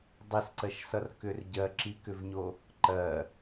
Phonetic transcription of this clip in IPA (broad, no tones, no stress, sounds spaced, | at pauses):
dˤ i s ǀ ɜ ʃ s ʌ r k ʏ r ɟ ɜ ǁ i k ʏ v ɲ o | ǃ ɜ